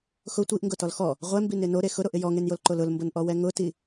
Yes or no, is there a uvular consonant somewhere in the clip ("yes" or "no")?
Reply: yes